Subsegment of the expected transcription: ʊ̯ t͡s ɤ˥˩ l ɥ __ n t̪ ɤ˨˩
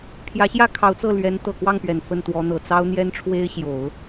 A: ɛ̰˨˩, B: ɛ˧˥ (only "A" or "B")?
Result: B